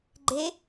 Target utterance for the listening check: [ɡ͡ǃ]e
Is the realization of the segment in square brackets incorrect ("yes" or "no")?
no